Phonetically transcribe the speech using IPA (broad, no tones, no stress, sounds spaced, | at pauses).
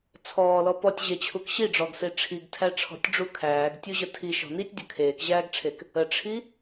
t͡sʰ ɔː l ɔ p ɔ tʲ ʑ e t͡ɕʰ u k ɕ i ɖ͡ʐ ɔ ɡ s e ʈ͡ʂʰ i ɡ tʰ æ ʈ͡ʂʰ ɔ̤ tʲ ɖ͡ʐ u kʰ æː ɡ tʲ u ʑ ə tʰ i ʃ ɔ̤ n i tʲ dʲ ə̤ kʰ eː k ʑ æː ɡ ʈ͡ʂʰ e k | ə ʈ͡ʂʰ i